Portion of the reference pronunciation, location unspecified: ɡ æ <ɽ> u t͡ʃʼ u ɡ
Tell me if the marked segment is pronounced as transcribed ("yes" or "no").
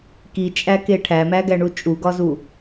no